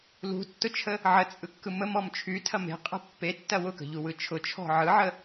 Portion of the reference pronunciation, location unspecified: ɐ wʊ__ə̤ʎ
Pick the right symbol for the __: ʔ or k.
k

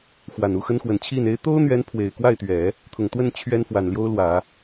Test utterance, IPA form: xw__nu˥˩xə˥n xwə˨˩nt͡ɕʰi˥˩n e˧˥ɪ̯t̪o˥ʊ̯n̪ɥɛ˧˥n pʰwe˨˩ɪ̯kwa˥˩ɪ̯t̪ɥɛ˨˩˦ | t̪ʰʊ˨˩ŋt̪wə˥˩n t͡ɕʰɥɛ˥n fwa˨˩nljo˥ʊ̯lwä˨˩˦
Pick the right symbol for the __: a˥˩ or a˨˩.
a˨˩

